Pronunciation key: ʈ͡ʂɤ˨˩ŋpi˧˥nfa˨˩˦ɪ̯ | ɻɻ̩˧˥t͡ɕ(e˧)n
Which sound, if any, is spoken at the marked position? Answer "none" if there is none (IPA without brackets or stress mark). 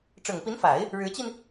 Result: i˧